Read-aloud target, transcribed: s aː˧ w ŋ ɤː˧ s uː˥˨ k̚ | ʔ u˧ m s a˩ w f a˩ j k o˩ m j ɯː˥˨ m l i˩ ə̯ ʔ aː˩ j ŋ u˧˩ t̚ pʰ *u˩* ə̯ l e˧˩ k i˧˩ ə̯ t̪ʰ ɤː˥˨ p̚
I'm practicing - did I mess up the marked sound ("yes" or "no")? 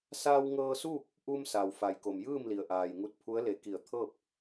yes